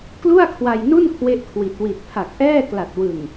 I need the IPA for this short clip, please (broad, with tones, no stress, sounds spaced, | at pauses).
k l u˥˩ a̯ kʰ w a˧ j n u˥˩ n kʰ w e˥˩ ʔ kʰ w i˨˩ t̚ w i˨˩ t̚ pʰ a˨˩ k̚ ʔ ɛː˥˩ k l a˨˩ t̚ w ɯ˨˩ ŋ